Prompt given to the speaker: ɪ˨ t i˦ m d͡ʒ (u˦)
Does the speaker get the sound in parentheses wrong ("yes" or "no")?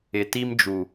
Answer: yes